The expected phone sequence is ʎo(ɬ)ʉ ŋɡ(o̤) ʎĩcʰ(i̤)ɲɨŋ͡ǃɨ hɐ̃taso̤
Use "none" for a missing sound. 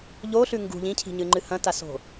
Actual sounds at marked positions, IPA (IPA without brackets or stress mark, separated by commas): ɬ, ṳ, i̤